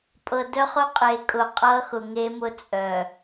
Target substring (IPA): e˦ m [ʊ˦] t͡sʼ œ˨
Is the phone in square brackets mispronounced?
no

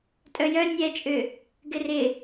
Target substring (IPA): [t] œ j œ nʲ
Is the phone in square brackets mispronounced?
yes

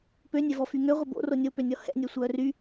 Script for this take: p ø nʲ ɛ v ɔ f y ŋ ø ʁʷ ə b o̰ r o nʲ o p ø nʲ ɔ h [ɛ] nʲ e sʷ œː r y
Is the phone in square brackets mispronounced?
yes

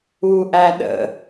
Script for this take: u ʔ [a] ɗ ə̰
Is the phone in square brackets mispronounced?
yes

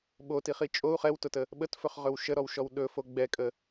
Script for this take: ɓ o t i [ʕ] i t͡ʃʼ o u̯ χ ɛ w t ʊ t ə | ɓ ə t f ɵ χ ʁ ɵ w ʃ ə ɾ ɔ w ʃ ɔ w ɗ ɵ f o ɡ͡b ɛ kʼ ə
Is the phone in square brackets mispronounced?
yes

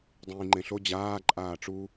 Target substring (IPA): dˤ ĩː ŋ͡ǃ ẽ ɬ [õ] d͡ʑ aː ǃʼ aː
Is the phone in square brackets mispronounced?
yes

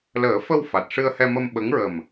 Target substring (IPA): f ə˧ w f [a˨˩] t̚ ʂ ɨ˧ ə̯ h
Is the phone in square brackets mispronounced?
no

